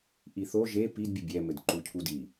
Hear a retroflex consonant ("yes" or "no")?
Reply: no